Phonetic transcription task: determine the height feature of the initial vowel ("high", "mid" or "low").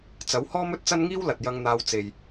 low